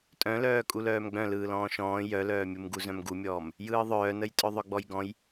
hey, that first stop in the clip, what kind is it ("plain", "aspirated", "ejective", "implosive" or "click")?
ejective